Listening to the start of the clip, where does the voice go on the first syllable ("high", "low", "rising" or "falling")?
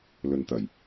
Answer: low